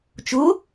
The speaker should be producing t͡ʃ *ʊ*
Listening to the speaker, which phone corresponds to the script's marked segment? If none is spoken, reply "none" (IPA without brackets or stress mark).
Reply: ʊ